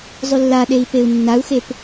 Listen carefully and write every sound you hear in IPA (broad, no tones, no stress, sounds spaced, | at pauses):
zˤ y lː a ɗ e i̯ p e u̯ nː a u̯ x e p